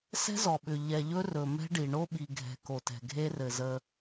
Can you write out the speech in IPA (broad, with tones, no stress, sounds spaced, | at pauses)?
s ɛ̤˦ z ɔ˨ ɓ ʏ˨ ʎ ɛ˨ ʎ ɵ˦ r ɵ˨ m ɛ̤˦ ɖ i˨ ɳ o˦ ɓ i˨ ɡʱ ɛ̤˨ k o˨ t ɛ̤˨ ɡʱ e˦ r ɘ˨ z ə˦